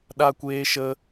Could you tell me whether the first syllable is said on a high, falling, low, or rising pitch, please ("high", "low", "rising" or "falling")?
high